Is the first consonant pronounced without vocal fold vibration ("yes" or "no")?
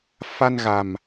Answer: yes